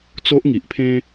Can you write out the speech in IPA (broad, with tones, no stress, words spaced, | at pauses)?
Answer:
t͡so˦ʔŋi˨ʔpʰẽ˦